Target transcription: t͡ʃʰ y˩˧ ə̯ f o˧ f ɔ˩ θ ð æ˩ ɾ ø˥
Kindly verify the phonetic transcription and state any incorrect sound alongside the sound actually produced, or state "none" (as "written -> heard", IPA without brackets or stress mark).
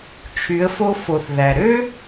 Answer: ɔ˩ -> o˩